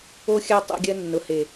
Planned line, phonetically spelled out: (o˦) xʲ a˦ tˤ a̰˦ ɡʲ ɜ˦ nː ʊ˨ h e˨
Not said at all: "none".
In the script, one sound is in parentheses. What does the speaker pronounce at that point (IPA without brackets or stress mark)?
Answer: o˦